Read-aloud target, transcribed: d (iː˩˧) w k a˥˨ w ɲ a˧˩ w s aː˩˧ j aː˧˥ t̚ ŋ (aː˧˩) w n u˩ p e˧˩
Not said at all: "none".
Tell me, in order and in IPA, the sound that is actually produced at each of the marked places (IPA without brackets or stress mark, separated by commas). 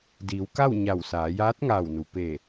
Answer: iː˩˧, aː˧˩